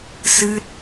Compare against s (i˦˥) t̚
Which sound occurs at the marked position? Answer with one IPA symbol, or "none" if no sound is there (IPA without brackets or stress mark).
ɨ˦˥